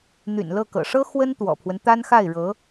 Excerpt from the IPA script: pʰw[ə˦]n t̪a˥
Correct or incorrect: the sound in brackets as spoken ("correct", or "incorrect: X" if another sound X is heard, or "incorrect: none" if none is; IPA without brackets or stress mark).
correct